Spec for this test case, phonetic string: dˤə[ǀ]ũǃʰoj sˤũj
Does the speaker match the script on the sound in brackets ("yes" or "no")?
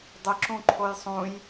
no